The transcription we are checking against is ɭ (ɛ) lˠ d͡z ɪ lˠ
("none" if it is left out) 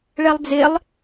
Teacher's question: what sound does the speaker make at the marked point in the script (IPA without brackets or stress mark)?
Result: ɛ